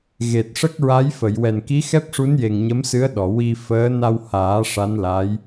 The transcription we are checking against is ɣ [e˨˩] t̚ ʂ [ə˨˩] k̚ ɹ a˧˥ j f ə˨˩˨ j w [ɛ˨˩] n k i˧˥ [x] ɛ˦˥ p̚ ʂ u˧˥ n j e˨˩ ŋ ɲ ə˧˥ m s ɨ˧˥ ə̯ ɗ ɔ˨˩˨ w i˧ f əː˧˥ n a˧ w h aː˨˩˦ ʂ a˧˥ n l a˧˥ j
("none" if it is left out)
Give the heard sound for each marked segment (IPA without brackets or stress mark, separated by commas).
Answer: e˨˩, ə˦˥, ɛ˨˩, x